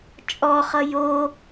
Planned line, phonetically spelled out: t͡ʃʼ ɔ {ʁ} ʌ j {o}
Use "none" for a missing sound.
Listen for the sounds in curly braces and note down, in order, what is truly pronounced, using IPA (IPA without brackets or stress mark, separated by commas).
χ, o